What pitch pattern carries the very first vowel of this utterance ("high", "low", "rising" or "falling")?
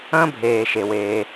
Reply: high